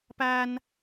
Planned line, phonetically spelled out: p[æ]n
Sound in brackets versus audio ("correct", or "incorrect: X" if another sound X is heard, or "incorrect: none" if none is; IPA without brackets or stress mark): correct